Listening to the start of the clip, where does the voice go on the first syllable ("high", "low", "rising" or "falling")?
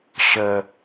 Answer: low